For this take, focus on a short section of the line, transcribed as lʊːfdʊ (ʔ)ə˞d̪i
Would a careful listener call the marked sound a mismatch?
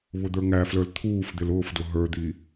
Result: yes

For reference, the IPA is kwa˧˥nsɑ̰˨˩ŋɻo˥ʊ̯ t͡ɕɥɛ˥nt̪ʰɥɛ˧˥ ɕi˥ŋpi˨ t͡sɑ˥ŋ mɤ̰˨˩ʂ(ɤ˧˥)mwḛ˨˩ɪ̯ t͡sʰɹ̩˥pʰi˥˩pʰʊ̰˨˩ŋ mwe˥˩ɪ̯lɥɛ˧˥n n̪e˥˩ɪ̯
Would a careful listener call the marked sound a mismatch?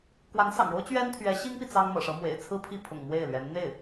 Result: no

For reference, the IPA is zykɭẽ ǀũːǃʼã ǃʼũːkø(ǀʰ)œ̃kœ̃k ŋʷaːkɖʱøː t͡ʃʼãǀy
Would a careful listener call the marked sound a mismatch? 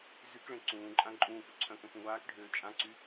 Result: no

